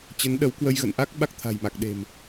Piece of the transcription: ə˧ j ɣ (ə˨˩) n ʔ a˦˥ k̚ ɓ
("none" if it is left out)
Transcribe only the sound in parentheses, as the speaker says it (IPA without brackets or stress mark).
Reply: ə̰˧˨